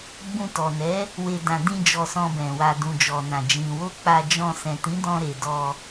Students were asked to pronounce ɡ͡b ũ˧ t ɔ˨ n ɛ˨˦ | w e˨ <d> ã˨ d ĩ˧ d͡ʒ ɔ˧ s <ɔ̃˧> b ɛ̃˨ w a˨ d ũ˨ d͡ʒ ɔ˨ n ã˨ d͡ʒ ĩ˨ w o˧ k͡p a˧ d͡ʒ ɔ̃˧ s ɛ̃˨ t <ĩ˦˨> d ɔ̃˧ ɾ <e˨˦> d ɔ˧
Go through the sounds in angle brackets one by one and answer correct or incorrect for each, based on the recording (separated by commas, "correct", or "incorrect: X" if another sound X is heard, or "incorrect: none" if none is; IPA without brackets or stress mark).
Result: correct, correct, incorrect: ĩ˨˦, incorrect: e˨